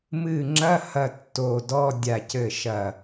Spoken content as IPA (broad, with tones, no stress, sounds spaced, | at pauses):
m ɨ˧˩ ŋ͡ǁ ɐ˧˥˧ h ɐ˧˩ tː o˧˩ d ɔ˧˥˧ dʲ a˧˩ c ɘ˧˩ ʃ ɐ˧˩